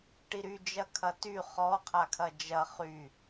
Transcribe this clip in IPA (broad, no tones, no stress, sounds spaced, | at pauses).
ʈ i ɾ y d͡ʒ ɐ kʰ ɐ t y χ ɔ qʰ a kʰ ɐ d͡ʒ ɐ χ y